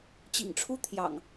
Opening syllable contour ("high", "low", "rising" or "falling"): low